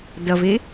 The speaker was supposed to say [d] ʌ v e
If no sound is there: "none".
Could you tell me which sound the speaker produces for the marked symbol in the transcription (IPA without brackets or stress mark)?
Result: d